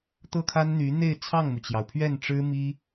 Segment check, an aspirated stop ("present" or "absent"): present